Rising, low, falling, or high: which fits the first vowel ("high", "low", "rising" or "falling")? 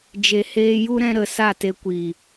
low